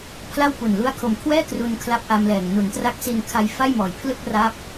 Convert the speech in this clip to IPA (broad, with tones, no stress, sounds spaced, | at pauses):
pʰ l a˥˩ w p u˨˩ n l u˧ a̯ kʰ o˨˩ m kʰ w ɛː˥˩ k r u˧ n kʰ l a˦˥ p̚ ʔ a˧ m l ɛː˨˩ ŋ n u˩˦ n t r a˦˥ k̚ s i˧ n kʰ a˧ j f a˥˩ j m ɔː˨˩ j pʰ l ɯ˥˩ k̚ r a˦˥ p̚